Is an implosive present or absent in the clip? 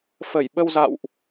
present